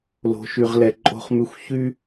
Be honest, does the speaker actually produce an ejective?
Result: yes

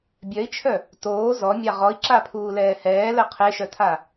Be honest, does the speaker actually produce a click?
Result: yes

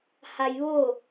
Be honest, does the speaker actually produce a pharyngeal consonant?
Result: no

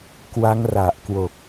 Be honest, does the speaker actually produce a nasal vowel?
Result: no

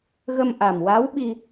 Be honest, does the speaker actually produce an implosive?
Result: yes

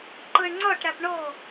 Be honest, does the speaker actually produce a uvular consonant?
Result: no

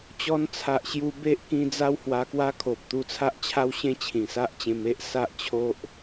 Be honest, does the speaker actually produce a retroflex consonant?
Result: no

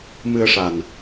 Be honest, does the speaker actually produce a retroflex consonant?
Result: yes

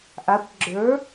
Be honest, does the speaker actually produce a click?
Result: yes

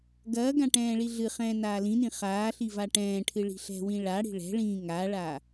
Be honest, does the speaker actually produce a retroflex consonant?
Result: yes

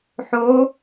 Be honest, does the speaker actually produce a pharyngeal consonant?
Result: yes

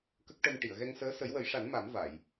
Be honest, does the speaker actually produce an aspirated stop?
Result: no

